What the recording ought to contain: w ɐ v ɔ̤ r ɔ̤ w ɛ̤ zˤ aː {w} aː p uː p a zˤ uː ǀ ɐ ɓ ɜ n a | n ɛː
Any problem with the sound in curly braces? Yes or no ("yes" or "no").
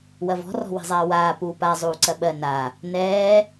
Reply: no